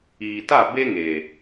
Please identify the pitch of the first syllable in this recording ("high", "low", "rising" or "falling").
low